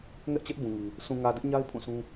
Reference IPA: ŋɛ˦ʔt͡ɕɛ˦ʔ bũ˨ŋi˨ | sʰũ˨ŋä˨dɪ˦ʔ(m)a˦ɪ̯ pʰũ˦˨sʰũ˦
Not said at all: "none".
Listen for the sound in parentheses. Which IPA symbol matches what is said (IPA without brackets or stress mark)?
ɲ